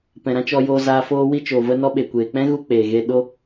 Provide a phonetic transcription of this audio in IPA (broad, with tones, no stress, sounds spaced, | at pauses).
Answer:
p ɛ̃˨ ɾ ã˦ t͡ʃ ɔ˧ j oː˧ z aː˧ f oː˧ w i˧ t͡ʃ oː˨ v ə˧ n ɔ˧ ɓ e˨ kʷ eː˨ k͡p ɛ̃˦ ɣ u˧ k͡p eː˨ ɣ e˧ ɗ o˦